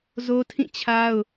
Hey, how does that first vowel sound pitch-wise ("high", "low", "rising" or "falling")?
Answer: high